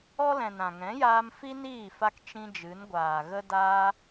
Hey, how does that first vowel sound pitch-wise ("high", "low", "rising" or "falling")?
high